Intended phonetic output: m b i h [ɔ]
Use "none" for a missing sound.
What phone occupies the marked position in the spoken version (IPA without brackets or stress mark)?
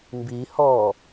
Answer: ɔ